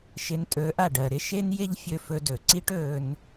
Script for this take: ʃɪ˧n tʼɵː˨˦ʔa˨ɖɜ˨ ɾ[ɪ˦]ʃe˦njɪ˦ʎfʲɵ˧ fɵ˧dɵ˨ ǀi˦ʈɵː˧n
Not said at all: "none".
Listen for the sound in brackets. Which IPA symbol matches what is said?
ɪ˦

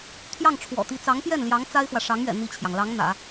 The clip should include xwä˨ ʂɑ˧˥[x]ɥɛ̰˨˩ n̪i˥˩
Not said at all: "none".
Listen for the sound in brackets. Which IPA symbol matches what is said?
ŋ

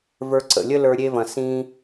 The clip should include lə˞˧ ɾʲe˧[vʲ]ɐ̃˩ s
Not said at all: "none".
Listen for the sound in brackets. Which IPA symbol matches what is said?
v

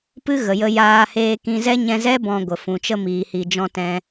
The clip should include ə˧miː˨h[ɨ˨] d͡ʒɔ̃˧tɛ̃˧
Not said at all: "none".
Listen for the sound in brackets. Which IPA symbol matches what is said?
i˨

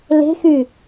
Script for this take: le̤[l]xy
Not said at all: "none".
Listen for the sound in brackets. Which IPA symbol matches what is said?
none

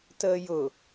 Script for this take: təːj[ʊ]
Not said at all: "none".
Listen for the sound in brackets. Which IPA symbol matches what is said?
ʊ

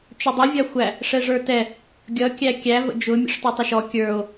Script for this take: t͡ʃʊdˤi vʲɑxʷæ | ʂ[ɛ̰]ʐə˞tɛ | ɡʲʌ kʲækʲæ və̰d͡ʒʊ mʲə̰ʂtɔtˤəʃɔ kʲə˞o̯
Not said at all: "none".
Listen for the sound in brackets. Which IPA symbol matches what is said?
ɛ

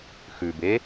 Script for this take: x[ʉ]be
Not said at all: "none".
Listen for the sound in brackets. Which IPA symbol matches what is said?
ʉ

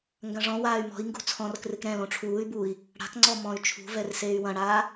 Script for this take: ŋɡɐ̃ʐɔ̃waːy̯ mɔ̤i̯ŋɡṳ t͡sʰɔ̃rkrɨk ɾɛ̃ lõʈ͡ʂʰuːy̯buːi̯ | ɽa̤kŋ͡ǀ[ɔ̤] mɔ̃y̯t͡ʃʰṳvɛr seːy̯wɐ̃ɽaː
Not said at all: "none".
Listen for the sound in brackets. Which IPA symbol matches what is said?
ɔ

